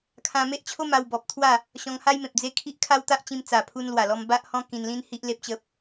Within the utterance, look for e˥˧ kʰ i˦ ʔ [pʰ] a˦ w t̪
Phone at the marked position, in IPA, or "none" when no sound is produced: kʰ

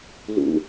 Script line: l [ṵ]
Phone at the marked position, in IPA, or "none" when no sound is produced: ṵ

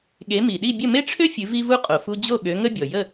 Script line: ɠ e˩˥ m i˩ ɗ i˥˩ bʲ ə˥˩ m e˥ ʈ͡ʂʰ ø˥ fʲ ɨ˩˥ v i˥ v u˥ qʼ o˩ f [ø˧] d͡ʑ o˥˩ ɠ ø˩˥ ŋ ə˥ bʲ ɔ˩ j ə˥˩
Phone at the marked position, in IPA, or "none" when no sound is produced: u˧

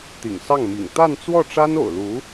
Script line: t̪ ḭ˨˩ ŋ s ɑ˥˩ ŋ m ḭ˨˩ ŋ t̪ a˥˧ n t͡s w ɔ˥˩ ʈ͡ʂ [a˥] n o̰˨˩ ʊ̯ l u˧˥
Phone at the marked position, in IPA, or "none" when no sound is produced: a˥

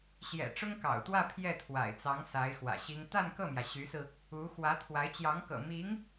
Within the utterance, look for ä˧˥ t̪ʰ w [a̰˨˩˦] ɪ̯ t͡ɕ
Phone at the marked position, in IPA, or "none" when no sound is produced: a˧˥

